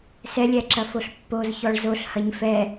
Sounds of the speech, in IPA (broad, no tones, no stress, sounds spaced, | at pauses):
s ɛ lʲ æ ǁ ɐ f o ɬ pː o z ç ɔ ɭ z o ɬ h ɐ ɲ f ɛ